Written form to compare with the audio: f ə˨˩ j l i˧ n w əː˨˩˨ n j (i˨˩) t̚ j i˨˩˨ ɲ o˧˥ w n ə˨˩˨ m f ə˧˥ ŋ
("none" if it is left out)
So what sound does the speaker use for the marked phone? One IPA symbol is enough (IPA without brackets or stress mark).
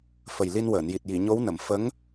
i˨˩